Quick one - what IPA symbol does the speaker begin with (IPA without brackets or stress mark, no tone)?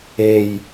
e